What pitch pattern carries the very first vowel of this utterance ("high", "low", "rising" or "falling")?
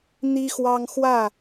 high